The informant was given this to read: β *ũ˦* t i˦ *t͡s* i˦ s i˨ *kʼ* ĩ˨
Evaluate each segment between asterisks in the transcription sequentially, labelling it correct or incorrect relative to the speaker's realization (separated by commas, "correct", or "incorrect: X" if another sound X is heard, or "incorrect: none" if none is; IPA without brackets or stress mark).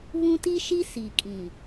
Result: correct, incorrect: ʃ, correct